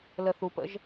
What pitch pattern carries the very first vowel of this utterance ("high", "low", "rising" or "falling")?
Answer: low